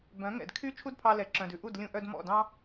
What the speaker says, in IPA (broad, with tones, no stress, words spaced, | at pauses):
bœ̃˩˥ ŋɛ̰˩d kʰy˥ t͡ʃʰu˥dpʰɑ˧lɛ˩ ǁœ̃˩dʉ˩ʔu˥˩d lʲũ˧ʔœ˧d mɔ̰˥˩dɑ̃˥